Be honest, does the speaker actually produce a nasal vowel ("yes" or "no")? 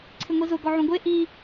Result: yes